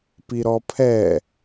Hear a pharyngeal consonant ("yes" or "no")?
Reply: no